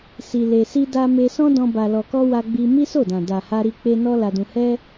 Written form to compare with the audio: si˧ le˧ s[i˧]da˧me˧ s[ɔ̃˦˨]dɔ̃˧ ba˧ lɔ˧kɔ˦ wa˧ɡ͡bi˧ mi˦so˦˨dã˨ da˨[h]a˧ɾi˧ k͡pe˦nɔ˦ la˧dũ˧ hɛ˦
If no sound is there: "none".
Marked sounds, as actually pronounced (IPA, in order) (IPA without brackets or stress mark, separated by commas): i˧, ɔ̃˦, h